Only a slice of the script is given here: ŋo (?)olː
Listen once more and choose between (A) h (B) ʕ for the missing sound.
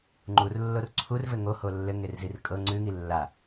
A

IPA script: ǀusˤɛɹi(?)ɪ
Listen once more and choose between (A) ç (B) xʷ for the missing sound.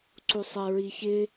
A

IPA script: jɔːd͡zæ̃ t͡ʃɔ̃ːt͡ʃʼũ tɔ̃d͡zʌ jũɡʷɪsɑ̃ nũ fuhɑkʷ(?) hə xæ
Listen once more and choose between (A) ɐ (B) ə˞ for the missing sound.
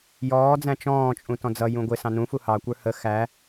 B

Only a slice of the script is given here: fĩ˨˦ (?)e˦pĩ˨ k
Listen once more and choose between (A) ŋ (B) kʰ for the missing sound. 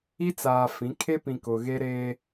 B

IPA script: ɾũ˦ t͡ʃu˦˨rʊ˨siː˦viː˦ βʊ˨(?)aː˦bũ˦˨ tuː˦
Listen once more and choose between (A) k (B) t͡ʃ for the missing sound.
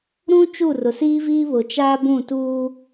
B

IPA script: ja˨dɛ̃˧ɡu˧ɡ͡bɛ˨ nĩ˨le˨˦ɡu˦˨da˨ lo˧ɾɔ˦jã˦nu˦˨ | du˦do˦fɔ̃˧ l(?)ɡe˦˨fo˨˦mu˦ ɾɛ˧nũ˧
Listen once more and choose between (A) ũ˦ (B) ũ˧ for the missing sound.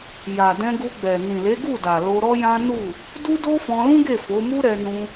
A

